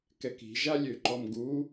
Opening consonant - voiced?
no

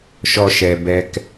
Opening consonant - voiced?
no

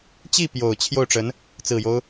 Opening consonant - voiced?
no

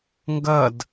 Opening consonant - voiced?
yes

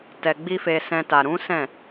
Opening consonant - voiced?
no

